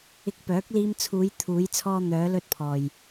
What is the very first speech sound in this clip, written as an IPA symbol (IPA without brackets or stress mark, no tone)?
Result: ɪ